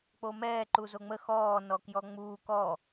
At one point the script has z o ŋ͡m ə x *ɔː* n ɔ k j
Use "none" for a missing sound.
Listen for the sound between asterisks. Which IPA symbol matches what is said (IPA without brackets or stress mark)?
ɔː